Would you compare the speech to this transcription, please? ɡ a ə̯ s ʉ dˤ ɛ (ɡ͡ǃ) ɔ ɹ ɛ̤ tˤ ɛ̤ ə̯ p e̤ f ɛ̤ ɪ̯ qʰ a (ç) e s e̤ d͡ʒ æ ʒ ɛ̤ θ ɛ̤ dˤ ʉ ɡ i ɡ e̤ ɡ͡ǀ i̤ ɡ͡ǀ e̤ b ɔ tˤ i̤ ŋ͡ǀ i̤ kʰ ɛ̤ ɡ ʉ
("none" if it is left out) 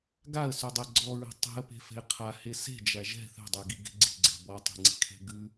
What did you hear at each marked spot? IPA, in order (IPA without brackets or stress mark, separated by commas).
ɡ͡ǀ, h